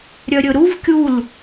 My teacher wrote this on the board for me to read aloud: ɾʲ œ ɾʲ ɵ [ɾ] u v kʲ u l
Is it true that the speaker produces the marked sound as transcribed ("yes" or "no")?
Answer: yes